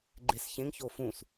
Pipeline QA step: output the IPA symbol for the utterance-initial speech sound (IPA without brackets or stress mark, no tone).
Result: ɡ͡ǃ